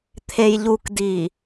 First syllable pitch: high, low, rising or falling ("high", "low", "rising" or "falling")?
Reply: low